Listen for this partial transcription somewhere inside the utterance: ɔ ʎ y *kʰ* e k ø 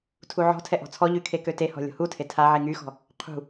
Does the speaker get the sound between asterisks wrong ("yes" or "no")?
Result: no